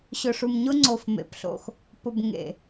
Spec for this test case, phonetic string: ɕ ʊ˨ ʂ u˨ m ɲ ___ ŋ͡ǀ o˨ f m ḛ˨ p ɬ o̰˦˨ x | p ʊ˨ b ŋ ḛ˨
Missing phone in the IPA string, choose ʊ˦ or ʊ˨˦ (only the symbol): ʊ˦